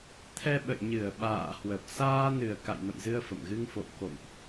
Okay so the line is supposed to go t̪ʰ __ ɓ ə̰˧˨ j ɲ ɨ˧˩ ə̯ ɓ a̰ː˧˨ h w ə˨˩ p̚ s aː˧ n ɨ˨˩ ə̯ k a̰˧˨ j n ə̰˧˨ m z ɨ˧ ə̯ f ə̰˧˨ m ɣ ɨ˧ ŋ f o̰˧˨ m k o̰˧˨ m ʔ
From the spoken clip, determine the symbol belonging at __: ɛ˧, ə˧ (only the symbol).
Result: ɛ˧